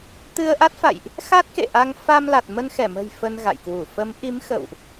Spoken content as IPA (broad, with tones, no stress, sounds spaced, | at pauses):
t̪ ɨ˧ ə̯ ʔ a˦˥ t̚ f a̰˧˨ j ʔ | x a˦˥ t̚ k ḛ˧˨ ʔ a˧ ŋ f a˧ m l a˨˩ t̚ m ə˧ n x ɛ˧˩ m ə̤˨˩ j f ə˧ n ɣ a̰˧˨ j k w u˧˩ f ə˨˦ m ʔ i˨˦ m x ə̰˧˨ w ʔ